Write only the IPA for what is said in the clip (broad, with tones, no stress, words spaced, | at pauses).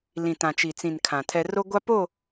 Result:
lĩ˨tã˨t͡ʃi˨t͡sĩ˨n kʰã˨tʰɛ˦ ro˦ɡʷa˦po˦˨